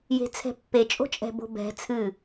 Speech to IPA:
j e̤ t͡sʰ ɛ̤ pː e t͡ʃʼ o̤ t͡ʃʼ ɛ̤ b o̤ b ɛ̤ t͡sʰ ɨ

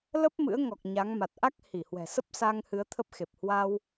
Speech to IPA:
l ə˦˥ p̚ m ɨ̰˧˥ ə̯ ŋ ɔ˨˩ k̚ ɲ a˨˦ ŋ m a˨˩ t̚ ʔ a˦˥ k̚ h i˧˩ h w ɛ̤˨˩ s ə˦˥ p̚ s a˧ ŋ h ɨ˨˦ ə̯ t̪ʰ ə˦˥ p̚ x e˨˩ p̚ h w a˧ w

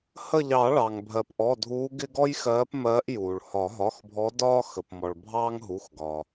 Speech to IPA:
h ə˦˨ ʎ ɑ˨˩˦ ɭ ɑ˩ ŋ bʱ ɜ˩ p ʔ ɔ˩˧˩ dʱ uː˨˦ ɡ ɪ˦ ɡ ɔ˦ j x ɜː˨˦ p m ɜː˨˦ ʔ j uː˩ ɭ h ɒ˨˩˦ ɦ ɒ˩˧˩ x bʱ ɔ˨˦ d ɒː˦ x ə˩ p m ɔ˩ ɭ bʱ ɑː˦ ŋ ɦ u˩˧˩ x ɡ ɒ˩

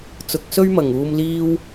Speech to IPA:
t͡s ʊ˨˥ k̚ s ɵ˥ ɥ m ɐ˨˩ ŋ uː˧ m l iː˥ w

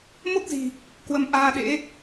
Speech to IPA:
m o˦˥ k̚ z i̤˨˩ | k w ə˨˦ m ʔ aː˧ ɗ ḛ˧˥

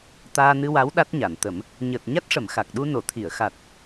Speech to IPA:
t̪ aː˧ n ɨ˧ w a˧˥ w ɗ a˦˥ t̚ ɲ a˨˩˨ n t̪ ə˨˩˦ m | ɲ əː˨˩ t̚ ɲ a˦˥ t̚ ʂ ə˨˩˨ m x a˨˩ k̚ ɗ u˧ n o˨˩˨ t̪ʰ i˨˩˨ ə̯ x a˨˩ t̚

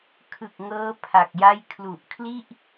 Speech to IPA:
kʰ ɯ˨˩ k̚ ŋ ɤː˦˥ pʰ a˨˩ k̚ j a˥˩ j kʰ l u˨˩ ʔ kʰ l i˥˩ ʔ

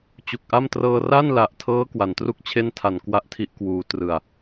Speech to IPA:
t͡ɕ u˨˩ k̚ ʔ a˥˩ m t r ɤː˧ r a˥˩ n l a˨˩ ʔ tʰ ɤː˦˥ k w a˩˦ n t r u˥˩ k̚ t͡ɕʰ e˥˩ n tʰ a˨˩ n k w a˥˩ ʔ tʰ i˦˥ ʔ k w uː˩˦ t r ɯ˨˩ a̯

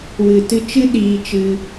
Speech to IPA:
w ɨ˨ t ɨ˧ t͡ʃ ɨ˦ ɗ iː˧ t͡ʃ ɨ˧

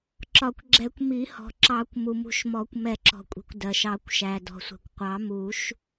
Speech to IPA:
ǁ ɒ˨˩˦ kʷ ɡ͡ǁ ɛ˨˩˦ kʷ m i˨˩˦ h ɔ̤˩ ǁ ɑ˨˩˦ kʷ m u˩ m ṳ˨˩˦ ʃ m ɔ˨˩˦ kʷ m ɛ˨˩˦ ǁ ɔ̤˩ kʷʼ i̤˩ kʷ d ɜ˩ ʃ ɑ˨˩˦ kʷ ʃ æ˩ d ɔ̤˩ sʷ ɛ̤˩ kʷ qʷ ɑ˨˩˦ m u˨˩˦ ʃ

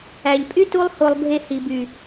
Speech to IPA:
æ˨ ʎ pʼ y˦ t u˧ lˠ h o˨ lˠ bʱ e˨ h i˨ b y˨

